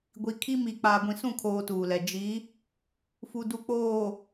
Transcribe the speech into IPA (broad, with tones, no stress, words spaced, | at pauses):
ɡʷi˨kʰi˦ mi˨ k͡paː˨ɡʷĩ˨sũ˦˨kʰoː˨ tuː˨lɛ˨ d͡ʒi˨˦ | fu˨du˨ k͡poː˨